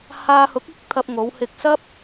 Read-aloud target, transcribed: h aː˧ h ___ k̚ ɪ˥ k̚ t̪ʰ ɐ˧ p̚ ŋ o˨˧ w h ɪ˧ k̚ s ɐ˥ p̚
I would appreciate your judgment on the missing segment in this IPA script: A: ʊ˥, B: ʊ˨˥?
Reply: B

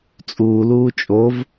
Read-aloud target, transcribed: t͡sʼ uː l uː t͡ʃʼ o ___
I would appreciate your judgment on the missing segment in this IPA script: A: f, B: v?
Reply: B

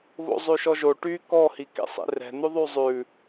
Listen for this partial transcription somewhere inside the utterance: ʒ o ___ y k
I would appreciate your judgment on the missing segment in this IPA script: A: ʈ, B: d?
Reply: A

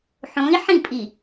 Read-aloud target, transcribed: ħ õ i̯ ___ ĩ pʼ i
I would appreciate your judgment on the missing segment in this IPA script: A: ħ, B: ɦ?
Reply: A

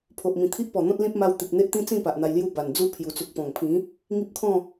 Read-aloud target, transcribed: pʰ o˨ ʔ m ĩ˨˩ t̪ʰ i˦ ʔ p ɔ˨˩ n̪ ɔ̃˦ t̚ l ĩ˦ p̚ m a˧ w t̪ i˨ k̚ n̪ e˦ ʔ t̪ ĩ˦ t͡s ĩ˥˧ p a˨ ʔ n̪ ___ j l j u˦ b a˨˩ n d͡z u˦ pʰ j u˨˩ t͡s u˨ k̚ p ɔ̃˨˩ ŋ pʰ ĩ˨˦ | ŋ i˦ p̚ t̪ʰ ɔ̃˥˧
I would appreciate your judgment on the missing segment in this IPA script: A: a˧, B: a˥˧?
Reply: A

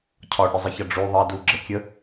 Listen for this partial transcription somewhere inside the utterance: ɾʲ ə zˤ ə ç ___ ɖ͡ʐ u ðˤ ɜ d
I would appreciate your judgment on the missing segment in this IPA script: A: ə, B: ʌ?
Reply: B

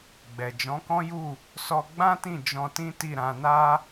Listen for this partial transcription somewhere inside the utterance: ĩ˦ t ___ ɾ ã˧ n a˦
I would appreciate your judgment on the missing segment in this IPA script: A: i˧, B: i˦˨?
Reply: B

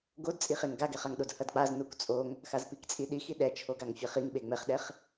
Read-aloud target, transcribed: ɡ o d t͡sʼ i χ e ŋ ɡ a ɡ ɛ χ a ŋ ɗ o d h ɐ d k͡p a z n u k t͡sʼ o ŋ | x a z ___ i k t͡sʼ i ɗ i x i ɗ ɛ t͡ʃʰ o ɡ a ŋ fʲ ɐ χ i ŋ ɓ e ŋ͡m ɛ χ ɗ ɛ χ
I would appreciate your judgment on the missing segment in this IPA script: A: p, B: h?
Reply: A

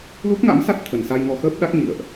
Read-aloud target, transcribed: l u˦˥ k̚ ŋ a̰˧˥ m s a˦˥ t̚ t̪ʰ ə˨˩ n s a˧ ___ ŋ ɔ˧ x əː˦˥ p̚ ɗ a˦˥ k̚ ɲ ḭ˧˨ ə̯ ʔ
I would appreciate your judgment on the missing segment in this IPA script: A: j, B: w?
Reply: A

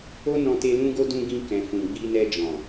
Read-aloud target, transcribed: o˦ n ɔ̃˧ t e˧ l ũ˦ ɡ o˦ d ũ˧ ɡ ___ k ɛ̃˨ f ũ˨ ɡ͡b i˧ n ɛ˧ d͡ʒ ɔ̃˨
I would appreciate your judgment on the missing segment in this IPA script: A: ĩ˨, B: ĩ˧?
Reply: B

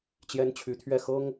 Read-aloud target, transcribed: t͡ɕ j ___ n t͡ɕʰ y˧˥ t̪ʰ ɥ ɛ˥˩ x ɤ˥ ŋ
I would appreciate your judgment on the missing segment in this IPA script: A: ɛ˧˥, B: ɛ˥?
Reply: B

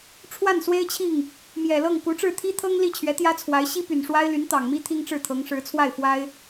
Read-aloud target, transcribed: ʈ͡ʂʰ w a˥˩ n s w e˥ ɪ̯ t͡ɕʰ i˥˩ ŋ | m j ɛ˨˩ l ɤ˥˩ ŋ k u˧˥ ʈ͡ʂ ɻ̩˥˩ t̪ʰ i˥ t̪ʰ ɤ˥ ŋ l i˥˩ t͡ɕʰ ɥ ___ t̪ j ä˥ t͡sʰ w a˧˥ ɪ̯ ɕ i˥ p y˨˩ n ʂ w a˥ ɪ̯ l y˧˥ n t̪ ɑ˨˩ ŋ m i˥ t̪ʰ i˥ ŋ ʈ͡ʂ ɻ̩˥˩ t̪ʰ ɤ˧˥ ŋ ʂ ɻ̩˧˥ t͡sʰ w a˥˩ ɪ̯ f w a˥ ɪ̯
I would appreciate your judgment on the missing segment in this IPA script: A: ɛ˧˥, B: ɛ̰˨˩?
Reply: A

